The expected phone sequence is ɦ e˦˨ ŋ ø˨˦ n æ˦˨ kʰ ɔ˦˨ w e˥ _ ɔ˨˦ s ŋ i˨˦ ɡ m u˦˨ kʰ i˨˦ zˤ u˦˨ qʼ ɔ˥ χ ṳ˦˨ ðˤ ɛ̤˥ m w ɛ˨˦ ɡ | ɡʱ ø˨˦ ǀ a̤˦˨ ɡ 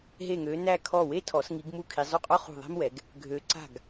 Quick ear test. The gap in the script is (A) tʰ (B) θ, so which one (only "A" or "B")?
A